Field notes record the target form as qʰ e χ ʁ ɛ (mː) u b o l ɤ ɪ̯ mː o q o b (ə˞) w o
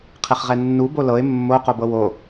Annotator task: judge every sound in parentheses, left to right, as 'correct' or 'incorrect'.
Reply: incorrect: nː, incorrect: ɤ

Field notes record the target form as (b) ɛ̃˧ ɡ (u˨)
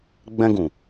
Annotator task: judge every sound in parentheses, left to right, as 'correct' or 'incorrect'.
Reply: incorrect: ɡ͡b, incorrect: ũ˨

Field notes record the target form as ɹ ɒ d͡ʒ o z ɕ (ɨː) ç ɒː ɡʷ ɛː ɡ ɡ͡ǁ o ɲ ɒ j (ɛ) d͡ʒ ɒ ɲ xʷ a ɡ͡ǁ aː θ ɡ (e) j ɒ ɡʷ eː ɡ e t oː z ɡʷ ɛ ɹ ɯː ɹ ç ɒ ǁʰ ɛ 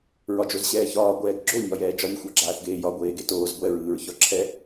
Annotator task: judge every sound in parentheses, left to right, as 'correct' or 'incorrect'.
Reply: incorrect: ɛː, incorrect: ɛː, incorrect: eː

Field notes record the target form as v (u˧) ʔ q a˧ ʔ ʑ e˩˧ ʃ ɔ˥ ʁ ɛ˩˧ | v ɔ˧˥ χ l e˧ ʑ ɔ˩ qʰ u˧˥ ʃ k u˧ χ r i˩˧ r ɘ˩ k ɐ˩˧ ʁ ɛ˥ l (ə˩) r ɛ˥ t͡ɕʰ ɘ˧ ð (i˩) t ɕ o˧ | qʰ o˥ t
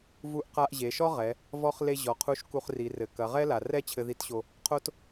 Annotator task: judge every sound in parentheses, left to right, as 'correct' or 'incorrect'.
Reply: correct, incorrect: a˩, incorrect: i˧˥

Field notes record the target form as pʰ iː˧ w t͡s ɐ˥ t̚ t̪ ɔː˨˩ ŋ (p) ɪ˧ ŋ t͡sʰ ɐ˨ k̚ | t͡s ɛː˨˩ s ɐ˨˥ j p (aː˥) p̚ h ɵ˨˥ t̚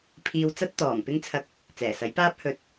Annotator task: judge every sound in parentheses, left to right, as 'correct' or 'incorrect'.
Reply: correct, correct

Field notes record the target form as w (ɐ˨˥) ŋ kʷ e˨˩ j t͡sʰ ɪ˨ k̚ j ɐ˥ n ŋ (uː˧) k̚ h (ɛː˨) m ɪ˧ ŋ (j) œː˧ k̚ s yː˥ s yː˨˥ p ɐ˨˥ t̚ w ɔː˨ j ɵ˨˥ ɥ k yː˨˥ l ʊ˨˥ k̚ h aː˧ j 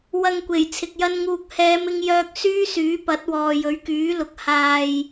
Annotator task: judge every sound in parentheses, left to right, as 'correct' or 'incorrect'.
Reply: incorrect: ɐ˧, correct, incorrect: ɛː˨˧, correct

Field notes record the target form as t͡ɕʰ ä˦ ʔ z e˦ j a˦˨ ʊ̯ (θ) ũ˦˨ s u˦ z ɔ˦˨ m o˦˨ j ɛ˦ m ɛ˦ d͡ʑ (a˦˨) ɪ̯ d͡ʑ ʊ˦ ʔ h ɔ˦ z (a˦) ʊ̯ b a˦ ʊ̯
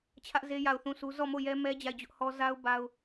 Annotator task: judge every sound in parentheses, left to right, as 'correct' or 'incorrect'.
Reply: correct, correct, correct

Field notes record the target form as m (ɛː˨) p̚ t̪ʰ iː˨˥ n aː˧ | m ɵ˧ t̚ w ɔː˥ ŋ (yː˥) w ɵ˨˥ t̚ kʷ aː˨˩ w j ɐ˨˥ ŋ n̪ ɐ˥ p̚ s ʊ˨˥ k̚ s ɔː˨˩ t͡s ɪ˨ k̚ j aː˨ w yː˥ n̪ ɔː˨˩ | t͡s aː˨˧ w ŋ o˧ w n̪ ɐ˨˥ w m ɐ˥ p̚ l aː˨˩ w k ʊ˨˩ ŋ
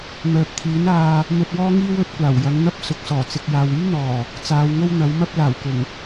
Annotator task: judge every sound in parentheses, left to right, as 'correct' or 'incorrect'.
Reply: incorrect: œː˨, incorrect: iː˥

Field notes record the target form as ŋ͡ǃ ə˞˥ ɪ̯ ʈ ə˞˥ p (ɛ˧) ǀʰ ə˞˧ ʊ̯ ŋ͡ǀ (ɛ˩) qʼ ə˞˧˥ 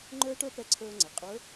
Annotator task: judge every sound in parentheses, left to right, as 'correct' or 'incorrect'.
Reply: incorrect: ɛ˧˥, correct

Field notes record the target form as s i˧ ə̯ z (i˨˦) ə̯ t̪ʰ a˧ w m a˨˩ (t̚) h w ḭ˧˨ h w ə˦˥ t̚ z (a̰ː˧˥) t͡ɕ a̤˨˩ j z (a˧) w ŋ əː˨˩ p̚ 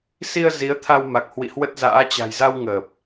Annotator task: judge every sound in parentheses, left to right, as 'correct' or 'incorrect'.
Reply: correct, incorrect: k̚, correct, correct

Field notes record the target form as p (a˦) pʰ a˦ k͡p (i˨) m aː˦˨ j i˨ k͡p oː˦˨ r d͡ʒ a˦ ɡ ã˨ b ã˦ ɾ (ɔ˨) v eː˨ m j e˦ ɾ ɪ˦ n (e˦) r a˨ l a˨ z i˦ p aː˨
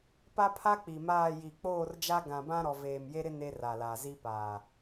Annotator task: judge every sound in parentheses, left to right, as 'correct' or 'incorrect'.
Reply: correct, correct, correct, correct

